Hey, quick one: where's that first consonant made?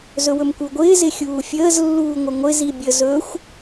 tongue tip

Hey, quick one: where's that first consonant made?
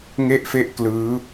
velum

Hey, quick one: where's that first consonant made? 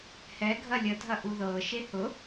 throat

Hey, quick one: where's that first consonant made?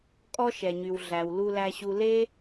velum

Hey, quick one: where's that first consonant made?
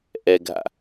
throat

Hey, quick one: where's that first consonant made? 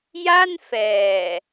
palate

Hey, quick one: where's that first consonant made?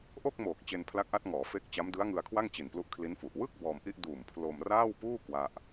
throat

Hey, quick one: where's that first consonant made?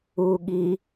velum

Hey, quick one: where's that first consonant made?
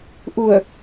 throat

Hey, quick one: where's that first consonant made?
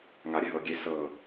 velum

